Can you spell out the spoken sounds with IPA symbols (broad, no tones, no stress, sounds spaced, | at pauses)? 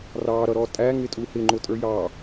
r ɑ ɾ ʌ ɾ ɔ tʼ æ ŋ ɪ tʼ u h ɪ ŋ͡ǃ ʊ tʼ ə˞ j ɑ